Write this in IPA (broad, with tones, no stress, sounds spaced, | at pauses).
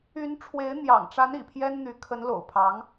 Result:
y˧˥ n ʈ͡ʂʰ w e˧˥ ɪ̯ n̪ j ɑ̰˨˩ ŋ ʈ͡ʂ a˧˥ n ḭ˨˩ pʰ j ɛ˥ n n̪ y˧˥ kʰ ə˧˥ n l o̰˨˩ ʊ̯ pʰ ɑ˧˥ ŋ